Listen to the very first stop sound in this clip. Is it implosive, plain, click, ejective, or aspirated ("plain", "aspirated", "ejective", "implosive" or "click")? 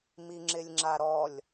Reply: click